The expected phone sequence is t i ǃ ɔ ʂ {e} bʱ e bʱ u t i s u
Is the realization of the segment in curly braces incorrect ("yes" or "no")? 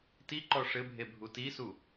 yes